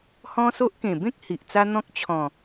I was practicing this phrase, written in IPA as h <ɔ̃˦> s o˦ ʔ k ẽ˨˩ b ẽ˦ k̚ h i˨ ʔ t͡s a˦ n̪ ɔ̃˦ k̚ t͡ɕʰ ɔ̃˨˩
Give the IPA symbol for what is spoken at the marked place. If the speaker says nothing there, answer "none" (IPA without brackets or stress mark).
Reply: ɔ̃˦